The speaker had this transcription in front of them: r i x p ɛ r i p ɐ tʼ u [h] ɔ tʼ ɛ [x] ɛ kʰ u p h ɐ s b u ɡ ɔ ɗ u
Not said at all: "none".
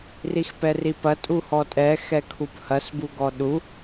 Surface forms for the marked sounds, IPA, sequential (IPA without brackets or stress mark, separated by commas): h, x